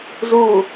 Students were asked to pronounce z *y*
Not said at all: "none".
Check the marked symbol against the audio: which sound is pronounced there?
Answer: u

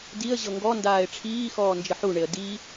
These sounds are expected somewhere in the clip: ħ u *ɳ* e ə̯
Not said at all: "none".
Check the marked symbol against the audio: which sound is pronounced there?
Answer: ɳ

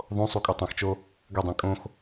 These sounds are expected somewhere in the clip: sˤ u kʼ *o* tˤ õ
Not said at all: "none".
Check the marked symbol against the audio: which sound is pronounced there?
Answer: o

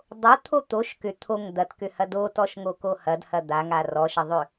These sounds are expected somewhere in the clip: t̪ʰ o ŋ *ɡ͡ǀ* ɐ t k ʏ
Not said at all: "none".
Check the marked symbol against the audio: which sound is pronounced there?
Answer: d̪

